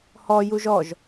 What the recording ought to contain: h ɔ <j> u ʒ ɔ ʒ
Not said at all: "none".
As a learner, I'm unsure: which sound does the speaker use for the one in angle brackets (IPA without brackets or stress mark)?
j